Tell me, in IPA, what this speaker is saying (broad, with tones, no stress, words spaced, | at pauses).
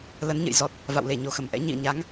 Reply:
lə˨˦nɲə̰˧˨j zɔ˨˩t̚ | va̰˧˨wle˧˩ ɲo˨˩xə˧˩mʔɛ̰˧˥ ɲḭ˧˨ə̯ɲa˨˦ŋ